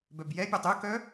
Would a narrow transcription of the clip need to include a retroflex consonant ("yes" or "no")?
no